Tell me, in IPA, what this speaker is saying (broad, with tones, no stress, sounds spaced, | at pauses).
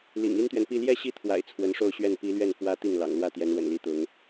l ḭ˨˩ ŋ i˥ n t̪ ɥ ɛ˨ n p i˥˧ l j ɛ˥˧ ɕ i˥˩ t̪ʰ w a̰˨˩ ɪ̯ t͡sʰ w ə˧˥ n ʂ o˥˧ ʊ̯ ɕ ɥ ɛ˥˩ n p i˧˥ l ɥ ɛ˥˩ n f w ä˥ t̪ i˥˩ ŋ l ɑ̰˨˩ ŋ l w ä˥˩ t̪ j ɛ˧˥ n w ə̰˨˩ n l i˧˥ t̪ ʊ˧˥ ŋ